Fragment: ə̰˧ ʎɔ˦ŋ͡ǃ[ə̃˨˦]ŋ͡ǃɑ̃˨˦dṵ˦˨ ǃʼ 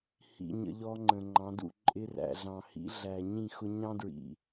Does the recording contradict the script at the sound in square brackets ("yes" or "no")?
yes